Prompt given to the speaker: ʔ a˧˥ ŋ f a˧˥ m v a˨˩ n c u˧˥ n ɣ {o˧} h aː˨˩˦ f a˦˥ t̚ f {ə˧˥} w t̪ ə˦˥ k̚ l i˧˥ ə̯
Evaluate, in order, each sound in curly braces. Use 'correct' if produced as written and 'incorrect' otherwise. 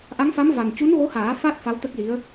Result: incorrect: o˧˥, incorrect: a˧˥

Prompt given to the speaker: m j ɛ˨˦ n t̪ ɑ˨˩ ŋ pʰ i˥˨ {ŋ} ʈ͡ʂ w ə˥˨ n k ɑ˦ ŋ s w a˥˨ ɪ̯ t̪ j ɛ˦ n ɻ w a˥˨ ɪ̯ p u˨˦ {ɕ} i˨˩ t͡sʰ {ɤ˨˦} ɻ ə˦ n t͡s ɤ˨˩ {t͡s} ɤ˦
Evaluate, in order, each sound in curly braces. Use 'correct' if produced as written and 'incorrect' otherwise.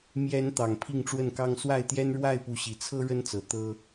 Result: correct, correct, incorrect: ɤ˦, incorrect: t̪

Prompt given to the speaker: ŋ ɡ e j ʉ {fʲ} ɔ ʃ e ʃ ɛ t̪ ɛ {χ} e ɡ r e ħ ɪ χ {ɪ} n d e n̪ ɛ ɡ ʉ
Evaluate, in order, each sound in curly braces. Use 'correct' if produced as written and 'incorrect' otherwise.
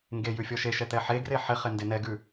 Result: correct, incorrect: ħ, correct

